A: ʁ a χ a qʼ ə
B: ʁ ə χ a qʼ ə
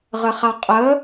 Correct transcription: B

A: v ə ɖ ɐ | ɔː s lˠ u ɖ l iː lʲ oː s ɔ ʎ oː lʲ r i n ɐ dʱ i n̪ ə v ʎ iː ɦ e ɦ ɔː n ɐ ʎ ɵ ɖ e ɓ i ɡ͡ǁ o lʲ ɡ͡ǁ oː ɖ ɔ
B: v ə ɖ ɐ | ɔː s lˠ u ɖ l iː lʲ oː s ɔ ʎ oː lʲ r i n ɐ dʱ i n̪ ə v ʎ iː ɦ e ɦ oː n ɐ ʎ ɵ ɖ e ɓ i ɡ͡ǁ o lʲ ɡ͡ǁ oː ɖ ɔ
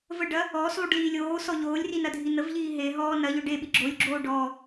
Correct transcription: A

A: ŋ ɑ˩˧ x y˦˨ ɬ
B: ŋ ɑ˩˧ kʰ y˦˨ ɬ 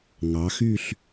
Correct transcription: A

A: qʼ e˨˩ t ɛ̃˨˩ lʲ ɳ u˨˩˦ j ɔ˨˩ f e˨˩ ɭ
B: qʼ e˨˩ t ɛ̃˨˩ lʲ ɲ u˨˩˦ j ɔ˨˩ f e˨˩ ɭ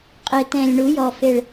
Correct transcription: A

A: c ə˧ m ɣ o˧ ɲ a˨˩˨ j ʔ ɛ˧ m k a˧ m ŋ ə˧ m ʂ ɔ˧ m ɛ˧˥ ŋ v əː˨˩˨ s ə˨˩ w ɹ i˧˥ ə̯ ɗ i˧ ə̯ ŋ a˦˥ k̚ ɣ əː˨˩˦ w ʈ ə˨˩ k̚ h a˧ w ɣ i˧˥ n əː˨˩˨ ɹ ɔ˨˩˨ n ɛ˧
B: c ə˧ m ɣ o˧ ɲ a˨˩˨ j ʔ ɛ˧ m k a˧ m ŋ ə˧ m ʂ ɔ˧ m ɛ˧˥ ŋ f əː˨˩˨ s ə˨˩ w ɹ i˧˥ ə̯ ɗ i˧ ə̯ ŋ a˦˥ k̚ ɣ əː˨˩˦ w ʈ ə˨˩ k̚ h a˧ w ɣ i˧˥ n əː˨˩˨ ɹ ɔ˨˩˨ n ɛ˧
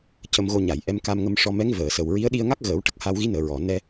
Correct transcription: A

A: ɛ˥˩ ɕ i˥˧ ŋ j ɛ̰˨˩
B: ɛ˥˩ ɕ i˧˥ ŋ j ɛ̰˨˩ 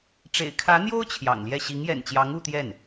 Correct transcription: B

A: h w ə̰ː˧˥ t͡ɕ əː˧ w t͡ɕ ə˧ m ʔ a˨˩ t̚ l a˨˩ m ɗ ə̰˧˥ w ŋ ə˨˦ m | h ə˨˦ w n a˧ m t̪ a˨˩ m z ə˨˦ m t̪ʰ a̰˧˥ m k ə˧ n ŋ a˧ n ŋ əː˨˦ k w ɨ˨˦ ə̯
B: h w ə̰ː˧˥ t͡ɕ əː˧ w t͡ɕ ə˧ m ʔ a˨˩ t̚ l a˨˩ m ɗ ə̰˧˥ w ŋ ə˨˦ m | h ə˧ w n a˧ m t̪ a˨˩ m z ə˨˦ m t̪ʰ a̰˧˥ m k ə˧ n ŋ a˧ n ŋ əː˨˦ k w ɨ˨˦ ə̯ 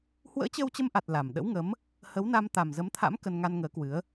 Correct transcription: A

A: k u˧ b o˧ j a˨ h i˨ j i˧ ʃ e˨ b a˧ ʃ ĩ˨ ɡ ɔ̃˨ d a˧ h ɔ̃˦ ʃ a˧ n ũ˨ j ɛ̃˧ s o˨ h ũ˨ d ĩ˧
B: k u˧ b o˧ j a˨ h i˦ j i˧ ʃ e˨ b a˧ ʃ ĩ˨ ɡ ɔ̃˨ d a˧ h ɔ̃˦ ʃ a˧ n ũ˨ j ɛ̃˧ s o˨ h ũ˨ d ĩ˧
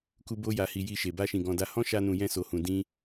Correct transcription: A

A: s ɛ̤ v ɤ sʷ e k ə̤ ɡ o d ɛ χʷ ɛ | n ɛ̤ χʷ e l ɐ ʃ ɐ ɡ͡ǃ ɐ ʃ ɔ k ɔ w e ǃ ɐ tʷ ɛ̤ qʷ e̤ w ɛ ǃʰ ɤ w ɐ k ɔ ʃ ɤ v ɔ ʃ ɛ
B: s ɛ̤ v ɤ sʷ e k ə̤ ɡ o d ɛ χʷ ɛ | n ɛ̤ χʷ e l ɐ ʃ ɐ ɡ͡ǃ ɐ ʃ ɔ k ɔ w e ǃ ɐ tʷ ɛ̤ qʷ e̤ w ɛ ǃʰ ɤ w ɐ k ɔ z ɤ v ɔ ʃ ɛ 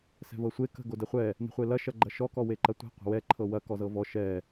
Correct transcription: B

